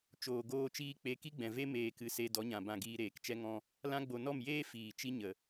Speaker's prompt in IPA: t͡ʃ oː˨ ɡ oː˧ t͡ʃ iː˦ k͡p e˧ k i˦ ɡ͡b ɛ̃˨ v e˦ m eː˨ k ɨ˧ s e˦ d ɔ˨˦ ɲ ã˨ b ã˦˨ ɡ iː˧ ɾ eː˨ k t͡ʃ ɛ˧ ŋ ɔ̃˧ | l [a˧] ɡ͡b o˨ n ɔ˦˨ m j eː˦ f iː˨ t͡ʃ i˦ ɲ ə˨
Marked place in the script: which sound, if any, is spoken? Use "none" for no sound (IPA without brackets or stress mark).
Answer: ã˧